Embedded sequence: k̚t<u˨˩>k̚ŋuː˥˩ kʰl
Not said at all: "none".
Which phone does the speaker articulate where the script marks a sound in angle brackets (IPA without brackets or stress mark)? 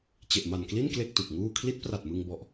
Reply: u˨˩